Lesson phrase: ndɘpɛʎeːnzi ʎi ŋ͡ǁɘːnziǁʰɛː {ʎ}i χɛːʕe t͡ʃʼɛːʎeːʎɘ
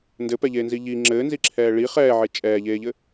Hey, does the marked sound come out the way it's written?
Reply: no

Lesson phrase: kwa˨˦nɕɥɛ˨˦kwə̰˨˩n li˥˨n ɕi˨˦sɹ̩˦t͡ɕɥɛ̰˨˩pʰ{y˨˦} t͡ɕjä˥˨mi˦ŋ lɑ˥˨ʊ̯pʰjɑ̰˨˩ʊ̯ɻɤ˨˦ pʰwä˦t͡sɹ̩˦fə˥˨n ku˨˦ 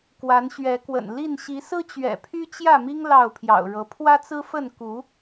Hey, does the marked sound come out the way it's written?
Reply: no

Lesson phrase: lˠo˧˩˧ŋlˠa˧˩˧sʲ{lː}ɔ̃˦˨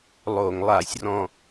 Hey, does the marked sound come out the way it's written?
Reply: no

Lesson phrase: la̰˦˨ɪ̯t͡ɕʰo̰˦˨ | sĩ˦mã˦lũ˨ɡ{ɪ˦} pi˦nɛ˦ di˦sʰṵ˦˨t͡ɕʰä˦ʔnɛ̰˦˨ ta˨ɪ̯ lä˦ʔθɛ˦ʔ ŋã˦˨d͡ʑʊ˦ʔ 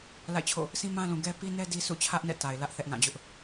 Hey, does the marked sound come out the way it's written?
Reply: no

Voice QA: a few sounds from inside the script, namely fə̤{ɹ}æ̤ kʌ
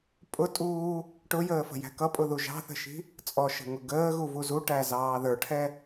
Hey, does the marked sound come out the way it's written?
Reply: no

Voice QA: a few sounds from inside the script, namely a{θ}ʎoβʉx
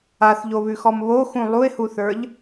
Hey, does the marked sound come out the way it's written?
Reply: yes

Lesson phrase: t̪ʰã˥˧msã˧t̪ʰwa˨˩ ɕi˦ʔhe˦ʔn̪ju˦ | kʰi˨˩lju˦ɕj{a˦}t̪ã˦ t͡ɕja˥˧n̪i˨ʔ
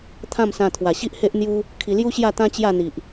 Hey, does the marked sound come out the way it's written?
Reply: no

